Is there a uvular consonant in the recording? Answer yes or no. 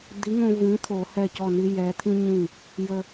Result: no